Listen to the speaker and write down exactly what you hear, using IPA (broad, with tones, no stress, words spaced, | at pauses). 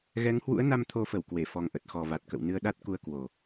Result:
ɣɛ˨˦ŋhwṵ˧˥ə̯na˧m t̪ʰo˧fə˧˩w kwe˧˩fɔ˨˩ŋʔə˨˩t̚ xɔ˨˩va˨˩t̚kə̰˧˨w nɨ˧ə̯ɗa˦˥t̚ ku˧ə̯kwo˨˩